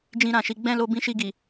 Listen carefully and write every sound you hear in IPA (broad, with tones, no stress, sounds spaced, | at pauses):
d͡ʒ ĩ˧ ɾ ã˨ ʃ i˨˦ ɡ͡b ɛ̃˦˨ l o˧ b ĩ˧ ʃ i˧ ɡ i˨